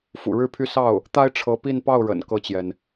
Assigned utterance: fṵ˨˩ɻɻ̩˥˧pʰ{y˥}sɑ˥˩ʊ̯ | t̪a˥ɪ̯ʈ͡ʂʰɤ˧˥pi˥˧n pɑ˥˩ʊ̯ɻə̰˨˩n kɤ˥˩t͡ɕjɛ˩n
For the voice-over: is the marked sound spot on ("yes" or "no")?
no